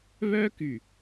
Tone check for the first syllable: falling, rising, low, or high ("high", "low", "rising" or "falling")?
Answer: high